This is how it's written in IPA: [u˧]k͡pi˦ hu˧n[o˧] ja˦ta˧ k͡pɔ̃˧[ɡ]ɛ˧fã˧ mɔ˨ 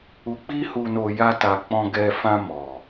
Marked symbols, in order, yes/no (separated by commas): yes, yes, yes